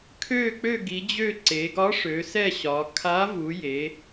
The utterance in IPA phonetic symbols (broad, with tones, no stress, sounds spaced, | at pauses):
kʰ ø˦˨ k͡p ø˦˨ ɡ i˩˧ d͡ʑ ø˦˨ ǀ e˩˧ ɡ ɒ˧˥ ʂ ø˩˧ s ɛ˦˨ ɕ ɒ˩˧ kʰ a˧˥ v u˩˧ j e˩˧